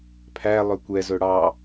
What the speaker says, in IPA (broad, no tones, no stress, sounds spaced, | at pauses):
pʰ æ lˠ ɵ kʷ ɛ z ɵ ɽ ɑ